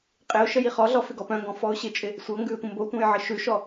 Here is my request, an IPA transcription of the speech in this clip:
qʼ ɪ ʊ̯ ʃ ə j i χ ɔ ɮ ɔ f ɪ ɡ ɔ p œ̃ ŋ ɡ ɔ̃ f ɔ ʊ̯ ɕ ɪ t͡ʃʼ ɪ | sʷ ɤ ŋ ɡ ʉ ɪ̯ tʷ ə̃ m b o tʷ ã j ʕ ə ʃ ʉ ʃ ɔ

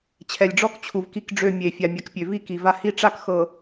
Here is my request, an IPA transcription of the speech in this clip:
t͡ɕʰ ɛ˨ lʲ ɖ͡ʐ ɔ˦ k t͡ɕʰ u˨ v k i˦ k ɖ͡ʐ ø˦˨ mʲ e˨ fʲ a˨ mʲ a˨ k pʲ ø˨ v i˦ k i˨ v a˦ h i˦ ʈ͡ʂ a˦ k x ɤ˨

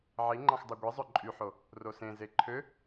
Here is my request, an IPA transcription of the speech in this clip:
ʕ i ŋ͡ǃ ɑ̃ x dˤ u ɡʷ i zˤ ø ǃʼ y ħ o | r o s ẽ z e ǃʰ ø

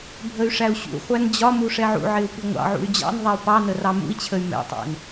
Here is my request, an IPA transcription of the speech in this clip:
bʱ ə y̯ ʂ æ u̯ ɕ ṵ χʷ æ n d͡ʑ ɒ m u ʂ ɛ ʕ ṵ ʕ ɪ u̯ p i ŋʷ ɑ̰ ʕ ṵ y̯ d͡ʑ ɑ̰ n ðˤ ɛ u̯ p ɑ n ə r ɑ m ṵ i̯ t͡ɕʰ ə y̯ m ɛ̰ tˤ æ̰ n

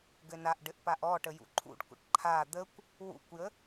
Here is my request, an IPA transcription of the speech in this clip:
ɡ ɘ n a ʔ ɖ ɘ ʔ p a ʔ ɔ ʈ ə j ṵ ǃʰ ṵ ɖ kʷ ə̰ ʈ ǃʰ a d̪ ə kʷ | w ṵ kʷ j ə

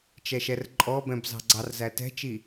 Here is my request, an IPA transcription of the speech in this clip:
t͡ʃ ɛ ʃ ɛ r ǃʼ ɔ b ɛ̃ b z ɑ̤ ɡ͡ǀ ɑ r z æ t ɛ̤ t͡ʃ i

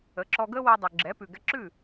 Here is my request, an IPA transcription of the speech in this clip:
ə˩˥ ǁ ɔ˧ ɡ ə˥ w ɛ˧ dˤ ʉ˩ ɡ͡ǁ ɛ˩˥ p ʉ˩ ɡ ɛ˧ ǁ ʉ˥˩

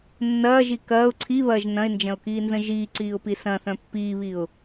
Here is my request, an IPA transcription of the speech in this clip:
nː ɐː ʒ i k ɐː ʊ̯ ǀʰ i β ɐː ʒ n ɐ̃ ɪ̯ n d͡ʒ ɐ̃ ʊ̯ k iː n z ə̃ ʒ iː ǀ iː ʊ̯ p i s ɐ̃ θ œ̃ pː iː β i ʊ̯

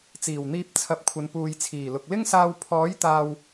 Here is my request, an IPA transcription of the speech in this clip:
t͡s iː˨˩ w n̪ iː˧ p̚ t͡sʰ ɐ˨˥ p̚ kʷʰ ɐ˨ n p uː˨ j t͡sʰ iː˨˩ l ʊ˨ k̚ l ɪ˥ ŋ s aː˧ w pʰ ɔː˨˥ j t̪ aː˨ w

